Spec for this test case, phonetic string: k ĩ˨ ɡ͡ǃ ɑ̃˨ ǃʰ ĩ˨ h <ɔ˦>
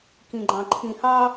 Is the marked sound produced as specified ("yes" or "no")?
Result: no